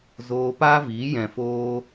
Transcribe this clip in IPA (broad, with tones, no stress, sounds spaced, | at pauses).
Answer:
z oː˧ p aː˦ v iː˨˦ j ɛ̃˨ f oː˧